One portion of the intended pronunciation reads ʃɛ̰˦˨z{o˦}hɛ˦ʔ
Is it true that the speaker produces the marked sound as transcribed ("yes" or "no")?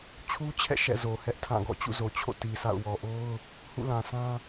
no